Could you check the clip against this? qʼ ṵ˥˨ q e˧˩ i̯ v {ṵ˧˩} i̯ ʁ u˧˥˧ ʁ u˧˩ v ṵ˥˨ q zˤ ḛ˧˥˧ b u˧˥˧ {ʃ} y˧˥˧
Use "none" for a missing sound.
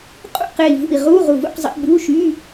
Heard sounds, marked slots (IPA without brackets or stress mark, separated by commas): ṵ˧˩, ʃ